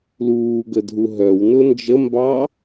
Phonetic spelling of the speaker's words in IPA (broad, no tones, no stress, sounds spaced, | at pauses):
l uː ɡ ə dʱ u ɦ œ w n ʊ n d͡ʒ ə m b ɑ